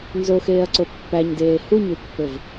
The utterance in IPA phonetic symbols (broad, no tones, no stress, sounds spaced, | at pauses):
n z o x eː ɐ̯ ǀ o pː æ ɲ d eː h u ɲ u pː ɘ v